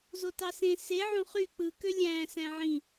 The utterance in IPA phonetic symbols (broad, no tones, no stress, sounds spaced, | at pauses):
z o t ɑ s ẽ s e ʕ õ χ y k͡p ɯ k ø lʲ æ̃ s æ̃ ʕ ĩ